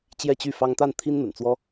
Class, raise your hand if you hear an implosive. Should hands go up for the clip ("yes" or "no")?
no